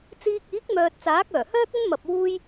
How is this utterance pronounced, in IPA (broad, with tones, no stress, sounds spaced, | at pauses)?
t͡s iː˧ k̚ iː˨˥ k̚ m œː˨ t̚ t͡s aː˨˥ k̚ œː˨˩ h œː˥ k̚ ɵ˥ n m ɐ˧ p̚ w uː˥ j